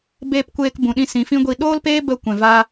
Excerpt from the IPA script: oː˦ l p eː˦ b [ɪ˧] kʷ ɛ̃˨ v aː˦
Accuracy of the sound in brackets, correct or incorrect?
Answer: incorrect